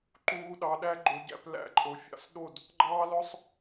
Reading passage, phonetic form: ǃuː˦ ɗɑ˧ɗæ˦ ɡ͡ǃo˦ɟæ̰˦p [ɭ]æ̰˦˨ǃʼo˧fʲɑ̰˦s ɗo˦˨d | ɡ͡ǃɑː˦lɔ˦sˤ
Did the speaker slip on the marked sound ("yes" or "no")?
yes